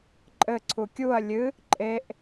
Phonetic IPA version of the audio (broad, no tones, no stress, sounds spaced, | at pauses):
ǃʼ ɘ ǀʰ u kʲ u ɐ̯ lʲ ɨ | ǃʼ e ʔ